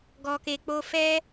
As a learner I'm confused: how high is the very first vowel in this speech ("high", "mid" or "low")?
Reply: mid